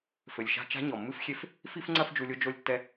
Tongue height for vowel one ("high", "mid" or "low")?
mid